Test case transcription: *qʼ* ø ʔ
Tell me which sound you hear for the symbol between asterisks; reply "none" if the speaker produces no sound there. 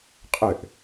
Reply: qʼ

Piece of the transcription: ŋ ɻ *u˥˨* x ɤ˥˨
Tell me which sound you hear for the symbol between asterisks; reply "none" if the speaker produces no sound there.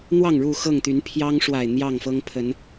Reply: u˥˨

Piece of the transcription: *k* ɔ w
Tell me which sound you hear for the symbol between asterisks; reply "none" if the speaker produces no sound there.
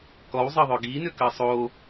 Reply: k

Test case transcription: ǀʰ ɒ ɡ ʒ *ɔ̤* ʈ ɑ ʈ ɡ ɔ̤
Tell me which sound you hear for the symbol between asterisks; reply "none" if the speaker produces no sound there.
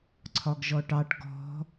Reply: ɔ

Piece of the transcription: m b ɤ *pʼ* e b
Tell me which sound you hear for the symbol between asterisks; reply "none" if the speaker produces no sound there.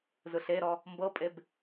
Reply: pʼ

